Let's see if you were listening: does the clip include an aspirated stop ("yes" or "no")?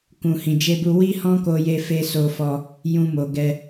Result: no